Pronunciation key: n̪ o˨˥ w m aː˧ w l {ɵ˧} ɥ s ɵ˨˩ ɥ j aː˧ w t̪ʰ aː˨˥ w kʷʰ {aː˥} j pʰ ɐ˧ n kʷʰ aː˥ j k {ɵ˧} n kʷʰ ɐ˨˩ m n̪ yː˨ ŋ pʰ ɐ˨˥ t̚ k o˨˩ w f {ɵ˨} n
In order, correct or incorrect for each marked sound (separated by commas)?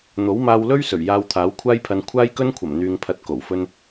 incorrect, correct, incorrect, incorrect